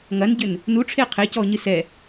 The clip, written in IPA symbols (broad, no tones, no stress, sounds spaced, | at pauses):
ŋ ɐ n ɟ ɘ n | n u ʈ͡ʂʰ e qʰ e c ɔ ɲ ɨ s ɛ